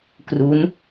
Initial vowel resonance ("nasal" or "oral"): oral